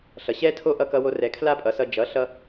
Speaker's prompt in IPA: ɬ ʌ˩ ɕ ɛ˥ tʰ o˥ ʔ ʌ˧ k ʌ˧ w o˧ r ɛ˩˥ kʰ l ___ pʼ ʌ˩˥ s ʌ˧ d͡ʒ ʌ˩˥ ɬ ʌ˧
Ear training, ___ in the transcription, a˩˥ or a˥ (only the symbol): a˥